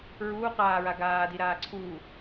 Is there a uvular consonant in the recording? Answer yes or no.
yes